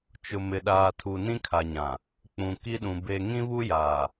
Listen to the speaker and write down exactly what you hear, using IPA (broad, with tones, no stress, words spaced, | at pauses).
t͡ʃʊ˨mɪ˨ ɗaː˨tʰu˨nĩ˦ kʰa˨ɲã˨ | k͡pũ˨ki˦ɗũ˨ be˨ ŋĩ˦βu˦jaː˨